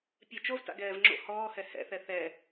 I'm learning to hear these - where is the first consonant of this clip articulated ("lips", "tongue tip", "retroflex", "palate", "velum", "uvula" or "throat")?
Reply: lips